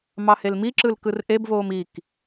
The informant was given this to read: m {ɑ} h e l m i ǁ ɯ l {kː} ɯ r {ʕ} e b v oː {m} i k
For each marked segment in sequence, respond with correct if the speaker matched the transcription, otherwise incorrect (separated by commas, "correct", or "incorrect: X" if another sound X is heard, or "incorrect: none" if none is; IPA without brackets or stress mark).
correct, incorrect: k, incorrect: ʔ, correct